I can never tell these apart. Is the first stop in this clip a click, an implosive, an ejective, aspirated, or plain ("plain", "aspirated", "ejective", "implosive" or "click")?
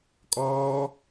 ejective